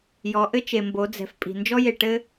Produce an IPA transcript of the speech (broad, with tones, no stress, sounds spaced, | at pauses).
j ɔ˩˧ ʔ ɘ˧ t͡ʃ e˩ m b o˩˧ d͡z ɛ̤˩ f pʼ i̤˩ n d͡ʒ ɔ˧ j e˩ ʈ ɘ˧